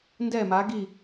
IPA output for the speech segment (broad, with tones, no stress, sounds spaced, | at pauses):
n d ɛ˥˧ m a˧˥ ɡ i˥˧